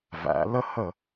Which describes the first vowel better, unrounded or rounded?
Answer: unrounded